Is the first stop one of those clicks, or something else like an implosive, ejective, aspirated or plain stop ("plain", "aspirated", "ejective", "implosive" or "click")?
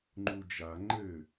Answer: click